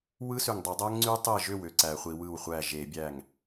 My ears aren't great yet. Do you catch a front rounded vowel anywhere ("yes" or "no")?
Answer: yes